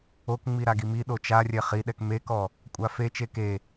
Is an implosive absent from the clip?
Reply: no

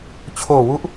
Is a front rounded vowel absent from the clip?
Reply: yes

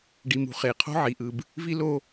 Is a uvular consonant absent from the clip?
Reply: no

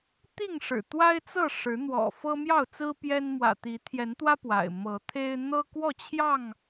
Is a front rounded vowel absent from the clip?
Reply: yes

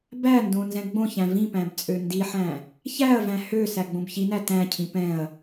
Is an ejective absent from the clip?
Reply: no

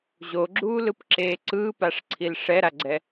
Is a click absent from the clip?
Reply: no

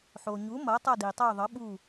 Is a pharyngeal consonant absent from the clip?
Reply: no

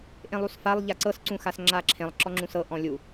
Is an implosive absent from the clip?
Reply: yes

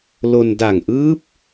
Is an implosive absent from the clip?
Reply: yes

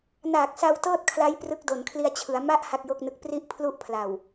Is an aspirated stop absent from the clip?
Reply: no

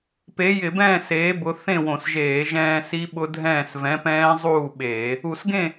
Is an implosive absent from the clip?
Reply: no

